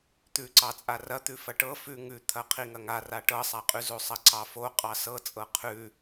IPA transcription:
t̪ʉǀɑ t͡sʼarɐt̪ʉ fɐʈɤ fʉ ŋʉt̪ʰɐ qʰiŋɐŋa raʈɤsˤaqʼʉ zosˤɐǀɑfo qʼɑsɤ t͡sʼɤqʰʉ

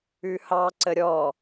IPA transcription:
ʉhɑǀə ɾʲɔ

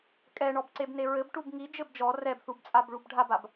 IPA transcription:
kʼɛɳɔbǀeb neɹɘb ʈubŋi d͡ʒɘbd͡ʒɔ rɛbθubt͡sʼabɭub ɖʱabab

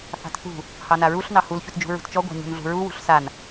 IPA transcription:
θɑ̤tθṳ | hɑnaɹuɬ nɑhul çutd͡ʒṳɹṳtt͡ʃɔ ɡʷa̤ɲṳnɮṳɹu wṳɬsan

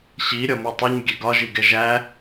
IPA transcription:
ɕiɾʲɒ mutˤuɲ ɡʲɛɡɒʒiɡɛ ʒæ

